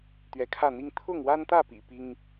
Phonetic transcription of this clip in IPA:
t̪ ɥ ɛ˨˦ kʰ ä˥˨ n̪ i˦ ŋ t̪ʰ ʊ˥˨ ŋ w a˦ n t̪ ä˥˨ p ḭ˨˩ p i˦ ŋ

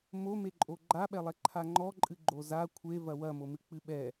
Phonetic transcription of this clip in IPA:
m o m e ǃʼ o ɡ͡ǃ a ɓ ɛ lˠ ɛ ǃʰ a ŋ͡ǃ ɔ ǃʼ ɨ ɡ͡ǃ o z a kʷʰ e v ɐ w ɐ m o m ɨ k͡p ɨ ɓ ɛ

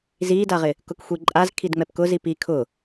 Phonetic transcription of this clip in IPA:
z iː d a ʁ ɪ | k ʊ k xʷ i ǃʼ a z kʰ i d ŋ͡m ɛ p k ʊ z i p i kʰ ʊ

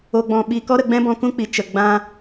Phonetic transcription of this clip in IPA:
o˧ ɡ͡b ɔ̃˧ ɓ i˧ k ɔ˦ ɾ ə˧ ɡ͡b ɛ̃˦ b ɔ̃˧ k ũ˦ k͡p i˨ t͡ʃ ə˨ ɡ͡b ã˦

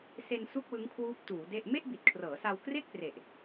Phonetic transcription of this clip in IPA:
s e˧ n s u˥˩ k̚ w ɯ˦˥ ŋ kʰ w uː˦˥ p̚ t uː˩˦ d e˥˩ ʔ m e˥˩ ʔ b i˨˩ t̚ kʰ r ɤː˩˦ s a˧ w k r e˥˩ k̚ p r e˨˩ ʔ

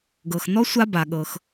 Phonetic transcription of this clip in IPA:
ɡ ɤ˩ x n ɔ˥ sʷ a˥ b a˩ ɠ ɤ˩ x

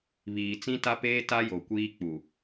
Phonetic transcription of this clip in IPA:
β iː˨ t͡s ĩ˦ t a˦ p eː˦ t a˦ j o˨ kʷ iː˦ k͡p u˨

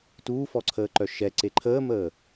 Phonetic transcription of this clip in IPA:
t uː f ɔ ǀʰ əː ǃ œ ʃ ɛ ǀ e ǃʰ əː m əː

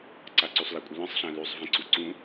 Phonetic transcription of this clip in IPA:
ǀ a ǀ y sˤ l ə kʷʼ ə l ə̃ sˤ ɬ ã l y sˤ v ĩ ǀ u ǀ ũ

